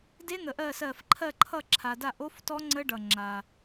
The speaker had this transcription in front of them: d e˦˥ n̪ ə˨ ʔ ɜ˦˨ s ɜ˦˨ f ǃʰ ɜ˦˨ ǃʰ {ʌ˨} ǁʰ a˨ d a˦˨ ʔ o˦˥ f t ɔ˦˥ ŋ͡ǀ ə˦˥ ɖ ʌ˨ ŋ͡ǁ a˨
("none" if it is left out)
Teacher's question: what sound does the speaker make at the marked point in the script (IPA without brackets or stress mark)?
ʌ˦˨